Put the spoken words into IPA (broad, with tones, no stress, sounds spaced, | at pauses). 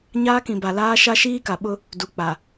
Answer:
ɲ aː˦ k ĩ˨ b a˨ l aː˦ ʃ a˦ ʃ iː˦ k a˨ ɓ ʊ˦ | d u˨ k͡p a˨